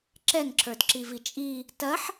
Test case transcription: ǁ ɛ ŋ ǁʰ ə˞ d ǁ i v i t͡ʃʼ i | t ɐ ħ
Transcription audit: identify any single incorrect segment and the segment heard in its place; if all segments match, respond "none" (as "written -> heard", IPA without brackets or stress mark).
none